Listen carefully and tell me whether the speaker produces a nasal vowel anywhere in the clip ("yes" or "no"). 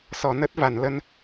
no